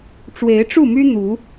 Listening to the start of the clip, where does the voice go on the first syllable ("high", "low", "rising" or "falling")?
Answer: rising